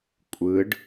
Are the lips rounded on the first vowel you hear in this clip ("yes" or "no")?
no